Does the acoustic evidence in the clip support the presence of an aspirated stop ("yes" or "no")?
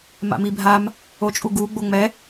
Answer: no